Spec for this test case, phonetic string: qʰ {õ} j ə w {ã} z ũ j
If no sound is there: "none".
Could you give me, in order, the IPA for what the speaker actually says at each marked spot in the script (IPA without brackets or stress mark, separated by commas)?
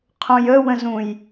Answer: õ, ə̃